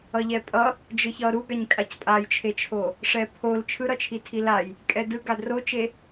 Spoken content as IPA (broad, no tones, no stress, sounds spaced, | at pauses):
ʌ ʎ ɛ pʼ ʌ | d͡ʒ ɯ ç ʌ ɾ u ɡ a ɲ kʼ a c pʼ a j t͡ʃʰ e t͡ʃʰ o | ʂ ɛ pʰ o l t͡ʃʰ ɯ ɾ ʌ t͡ʃʰ i tʰ i l a j | kʼ ɛ d ɯ ɡ a d r o t͡ʃ e